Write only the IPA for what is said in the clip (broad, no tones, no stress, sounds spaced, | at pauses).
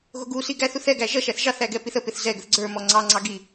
ɣ ʊ ɡ u s i ɡ æ θ u θ ɛ ɡ æ ʒ ʌ ʃ æ θ ʒ ɑ θ æ ɡ ɛ p i θ ə p ɪ θ z ɛ ɡ ə θ ɡ͡ǀ ə˞ m ɔ ŋ͡ǀ ɑ ŋ͡ǀ ɑ ɡ i